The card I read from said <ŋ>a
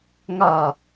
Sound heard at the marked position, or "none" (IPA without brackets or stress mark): ŋ